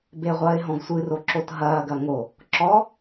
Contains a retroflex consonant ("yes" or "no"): no